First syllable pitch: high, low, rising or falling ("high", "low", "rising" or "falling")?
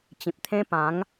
low